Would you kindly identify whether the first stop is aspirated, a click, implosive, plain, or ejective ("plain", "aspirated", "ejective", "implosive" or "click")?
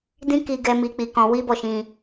plain